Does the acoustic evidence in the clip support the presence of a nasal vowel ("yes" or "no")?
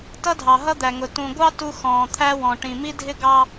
yes